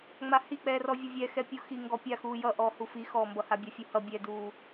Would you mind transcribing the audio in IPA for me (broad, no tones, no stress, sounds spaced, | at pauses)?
ŋ͡m a h i k͡p ɛː r ɔ vʲ ʌ vʲ ɛ x ɛ pʲ u x i ŋ ɡ ɔ pʲ a x uː j ʌ ʔ ɔː h u f i x ɔː m b ʌ h a bʲ a fʲ u h ʌ bʲ ɛ d uː